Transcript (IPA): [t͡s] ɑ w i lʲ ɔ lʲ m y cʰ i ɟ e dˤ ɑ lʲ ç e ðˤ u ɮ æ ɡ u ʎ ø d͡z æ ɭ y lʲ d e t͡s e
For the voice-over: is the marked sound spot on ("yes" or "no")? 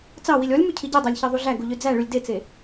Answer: yes